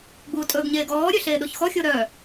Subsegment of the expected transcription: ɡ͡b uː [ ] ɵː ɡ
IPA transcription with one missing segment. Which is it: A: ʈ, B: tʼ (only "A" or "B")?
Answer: B